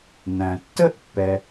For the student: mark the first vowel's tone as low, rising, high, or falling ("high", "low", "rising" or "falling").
low